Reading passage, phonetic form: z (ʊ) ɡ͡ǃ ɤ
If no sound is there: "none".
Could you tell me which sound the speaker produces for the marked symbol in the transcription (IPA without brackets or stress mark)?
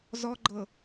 ɔ